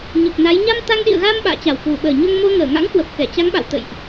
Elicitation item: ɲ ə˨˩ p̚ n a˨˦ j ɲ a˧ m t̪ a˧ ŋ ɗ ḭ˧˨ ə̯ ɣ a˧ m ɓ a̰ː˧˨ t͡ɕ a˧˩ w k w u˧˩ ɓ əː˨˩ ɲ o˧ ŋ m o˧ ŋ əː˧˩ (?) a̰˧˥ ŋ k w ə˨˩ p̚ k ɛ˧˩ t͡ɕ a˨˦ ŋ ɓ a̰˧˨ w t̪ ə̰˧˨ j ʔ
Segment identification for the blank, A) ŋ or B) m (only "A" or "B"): A